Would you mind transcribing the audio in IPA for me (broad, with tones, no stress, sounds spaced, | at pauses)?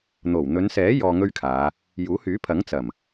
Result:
n̪ o˨˩ w n̪ ɵ˨˧ n s ɛː˨˥ j ɔː˧ ŋ ɵ˥ ɥ kʰ aː˨˧ | j uː˨˥ h yː˨˥ pʰ ɐ˨˥ ŋ t͡s ɐ˨˩ m